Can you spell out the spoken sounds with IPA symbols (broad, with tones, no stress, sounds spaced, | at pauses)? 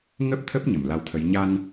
ŋ ə˦˥ p̚ t̪ʰ ə˦˥ p̚ ɲ ə˧˩ m l a˧ w t̪ʰ ə˨˦ j ɲ a˧ n